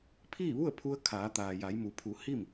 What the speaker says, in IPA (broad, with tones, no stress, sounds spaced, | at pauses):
pʰ iː˥˨ ʋ u˥˨ ə̯ pʰ u˧ ə̯ kʰ aː˩˧ t̪ aː˩ j a˩˧ j m u˩˧ pʰ u˩˧ h i˥˨ m